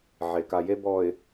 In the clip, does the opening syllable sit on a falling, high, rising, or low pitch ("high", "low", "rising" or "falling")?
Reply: low